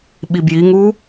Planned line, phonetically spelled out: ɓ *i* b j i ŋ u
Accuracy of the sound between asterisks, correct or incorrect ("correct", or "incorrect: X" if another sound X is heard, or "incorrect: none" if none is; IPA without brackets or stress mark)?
correct